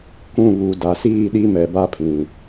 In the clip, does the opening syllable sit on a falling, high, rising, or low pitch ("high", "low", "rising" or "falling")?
falling